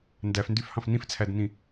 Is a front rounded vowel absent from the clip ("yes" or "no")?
no